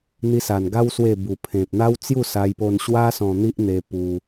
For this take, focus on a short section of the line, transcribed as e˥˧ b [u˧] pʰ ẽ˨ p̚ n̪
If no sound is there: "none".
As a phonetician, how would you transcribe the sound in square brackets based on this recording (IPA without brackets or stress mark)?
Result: u˨˩